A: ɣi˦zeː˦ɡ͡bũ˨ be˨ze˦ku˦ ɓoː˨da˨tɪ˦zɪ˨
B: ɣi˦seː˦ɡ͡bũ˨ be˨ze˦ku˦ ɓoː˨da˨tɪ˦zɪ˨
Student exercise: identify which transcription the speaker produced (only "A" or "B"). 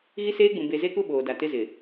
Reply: B